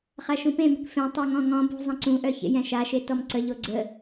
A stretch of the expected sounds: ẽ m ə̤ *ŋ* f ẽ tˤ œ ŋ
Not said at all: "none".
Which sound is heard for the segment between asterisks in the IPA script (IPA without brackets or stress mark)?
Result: k